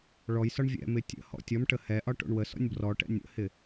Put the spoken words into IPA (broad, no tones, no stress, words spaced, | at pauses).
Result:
ɭɔjsɒɳ vʲɛ̰mɪ tʲə̰hɔ̰ tʲɔmʈə hɛʔɒ ʈo̰ɳwəsɔ̰nʲ brɔʈɛ̰ nʲə̰hɪ